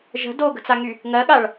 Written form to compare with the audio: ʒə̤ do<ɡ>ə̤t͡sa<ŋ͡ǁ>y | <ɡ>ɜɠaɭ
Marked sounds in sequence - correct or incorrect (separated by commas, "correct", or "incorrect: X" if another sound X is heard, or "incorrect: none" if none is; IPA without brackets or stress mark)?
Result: correct, incorrect: ŋ, incorrect: ŋ